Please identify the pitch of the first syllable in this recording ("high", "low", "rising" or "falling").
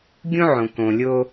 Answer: high